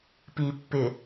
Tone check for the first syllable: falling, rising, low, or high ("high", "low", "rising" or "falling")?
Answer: low